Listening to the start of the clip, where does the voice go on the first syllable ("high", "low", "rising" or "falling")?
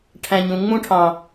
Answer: low